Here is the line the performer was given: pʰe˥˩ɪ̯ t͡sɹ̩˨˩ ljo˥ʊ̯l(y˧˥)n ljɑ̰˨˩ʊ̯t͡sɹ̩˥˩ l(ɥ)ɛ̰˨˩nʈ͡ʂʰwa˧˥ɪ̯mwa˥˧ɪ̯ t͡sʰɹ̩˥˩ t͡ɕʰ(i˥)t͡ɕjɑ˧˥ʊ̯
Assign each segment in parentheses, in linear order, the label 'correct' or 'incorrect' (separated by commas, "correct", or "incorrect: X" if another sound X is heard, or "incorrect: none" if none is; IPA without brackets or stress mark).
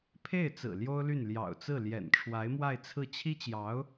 incorrect: y˥˩, incorrect: j, correct